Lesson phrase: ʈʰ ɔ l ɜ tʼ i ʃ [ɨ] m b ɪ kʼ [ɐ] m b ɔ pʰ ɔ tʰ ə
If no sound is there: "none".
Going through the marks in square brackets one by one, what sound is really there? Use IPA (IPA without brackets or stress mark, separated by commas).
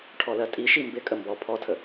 i, ə